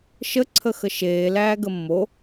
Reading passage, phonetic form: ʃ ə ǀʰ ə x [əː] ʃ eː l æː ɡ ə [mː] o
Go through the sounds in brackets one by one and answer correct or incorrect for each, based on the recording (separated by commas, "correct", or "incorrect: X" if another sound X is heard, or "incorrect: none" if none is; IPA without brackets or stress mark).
incorrect: ə, correct